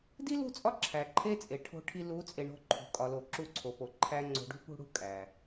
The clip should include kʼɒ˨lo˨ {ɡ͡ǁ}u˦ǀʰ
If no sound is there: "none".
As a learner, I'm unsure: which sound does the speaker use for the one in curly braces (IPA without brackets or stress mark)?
ǁ